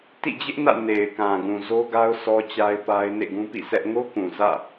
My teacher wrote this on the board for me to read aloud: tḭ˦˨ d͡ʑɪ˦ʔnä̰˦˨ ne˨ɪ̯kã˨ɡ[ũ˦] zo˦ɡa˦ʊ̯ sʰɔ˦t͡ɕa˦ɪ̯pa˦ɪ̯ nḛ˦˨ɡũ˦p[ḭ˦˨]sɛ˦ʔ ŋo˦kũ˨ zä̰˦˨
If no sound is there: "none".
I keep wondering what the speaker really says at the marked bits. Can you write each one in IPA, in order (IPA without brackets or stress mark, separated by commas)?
ũ˨, ḭ˦˨